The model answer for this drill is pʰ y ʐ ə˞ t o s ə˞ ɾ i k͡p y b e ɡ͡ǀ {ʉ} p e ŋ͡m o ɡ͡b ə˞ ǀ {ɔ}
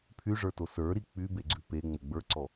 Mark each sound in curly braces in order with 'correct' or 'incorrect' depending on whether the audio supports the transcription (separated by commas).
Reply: correct, correct